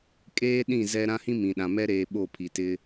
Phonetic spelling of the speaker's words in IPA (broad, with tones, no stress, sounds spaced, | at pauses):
kʼ eː˦ ɗ ĩ˦˨ z ɛ˦ ɾ ã˦ h ĩ˦ m ĩ˨ ɗ ã˨ m ɛ˦ ɾ eː˨ ɓ o˦˨ pʰ i˨ t ɪ˦